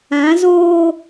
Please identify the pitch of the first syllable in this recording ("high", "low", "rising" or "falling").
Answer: rising